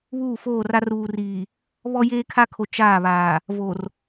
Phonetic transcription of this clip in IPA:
βuː˦˨foː˦˨ra˦ ruː˨riː˨ | βɔ˦jeː˦kʰa˦kʰo˨ t͡ʃaː˦˨βaː˨ | vo˨r

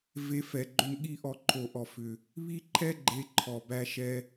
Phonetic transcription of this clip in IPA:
ve˧fɛ˨ɡ͡ǃʏ˧nɠi˦˨ ʔɔ˧ǃʰo˨ʔɔ˨fʏ˨ | βi˦ǃʰɛ˦ɡ͡ǃe˧ ǃʰɔ˨bæ˦ ʃɛ˦

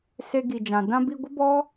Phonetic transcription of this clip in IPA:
se˧ɡi˨d͡ʒã˨ dã˧bi˧ ɡʷə˦bɔ˦

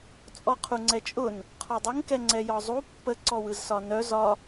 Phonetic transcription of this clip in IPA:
t͡sʼɔqʰuŋ͡ǀɛt͡ʃʼʊn | qʰɔdˤʊŋ kɛŋ͡ǀɛjɒzˤu pːə ǀɔwɯzsɒnœ zɒ

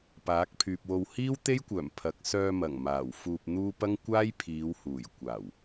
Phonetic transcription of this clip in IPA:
paː˨˥k̚pʰyː˨p̚wo˧w hiː˥wt̪e˥jkʷœː˨˩m pʰɐ˨k̚sœː˧ mɐ˨˩ŋmaː˨˩w fuː˧p̚n̪uː˥ pɐ˥ŋkʷaː˥j pʰiː˨˧whuː˨˩j kʷaː˨˩w

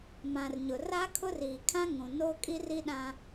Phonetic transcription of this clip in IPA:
mã˨rɲʊ˨ ra˦kʰʊ˦riː˨ kʰã˦ŋũ˨noː˦ kʼi˦ri˦ɗã˦

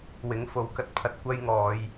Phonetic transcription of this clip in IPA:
wɪ˨˥ŋ fo˨˥wkɐ˨t̚pʰɐ˧t̚ kʷɐ˥j ŋɔː˨˧j

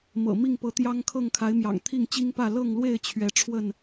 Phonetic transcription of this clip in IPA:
mɤ̰˨˩ mi˥˨ŋpɤ˨˦t̪jɑ˦ŋkʰɤ˥˨ŋ kʰa˨˦ɪ̯mjɑ̰˨˩ŋ t̪ʰi˥˨ŋt͡ɕi˦ŋpä˥˨ lɤ˥˨ŋlwe˥˨ɪ̯ t͡ɕʰɥɛ˨˦ ʈ͡ʂʰwə˥˨n

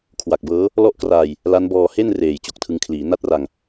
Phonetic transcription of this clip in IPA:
kʰwa˨˩k̚bɤː˦˥ | lɔ˥˩ʔkraː˧j | la˦˥nbɔː˧ he˥˩n reː˨˩jt͡ɕo˨˩k̚tʰɯ˧ŋkʰliː˩˦ na˥˩t̚ra˧ŋ

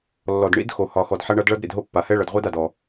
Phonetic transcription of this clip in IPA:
lːɔ˨dɳḭ˦dxo˨ hɒ˨ xɔ˨dħa˦ɳʌ˦d ɭʌ˦d ɾḭ˨dɦo˦pːa˨ hɛ˦ɭʌ˨dʁʷi˦da˨d ɔ˦

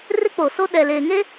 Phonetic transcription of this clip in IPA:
rɪ˦k͡po˨ so˦ ɗɛ˨leː˨ŋe˦

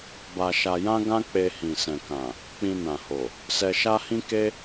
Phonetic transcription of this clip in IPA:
ba˧ʃa˧ jã˦ɡã˦k͡pe˧ hĩ˨sɛ̃˨kã˨ | k͡pĩ˧nã˨ho˨ | sɛ˧ʃa˦hĩ˦ ke˦

